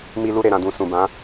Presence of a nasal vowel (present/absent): present